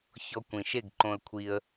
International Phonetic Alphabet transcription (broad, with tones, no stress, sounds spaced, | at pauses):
ç ɔ˧ kʷ ĩ˨ ʃ e˦˨ ɡ ǃ õ˧ ə̯ kʷʰ i˦ ə̯